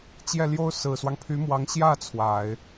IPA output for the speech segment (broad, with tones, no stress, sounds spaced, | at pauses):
t͡ɕ j ɛ˥˩ l j o˥ ʊ̯ s ɹ̩˨˩ s w ɑ˦ ŋ pʰ y˧˥ m w ɑ˧˥ ŋ ɕ j ä˥˩ t͡sʰ w a˨˩˦ ɪ̯